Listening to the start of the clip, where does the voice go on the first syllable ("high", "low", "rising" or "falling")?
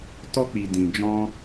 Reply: high